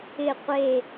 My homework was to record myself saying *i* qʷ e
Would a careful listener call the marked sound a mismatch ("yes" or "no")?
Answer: yes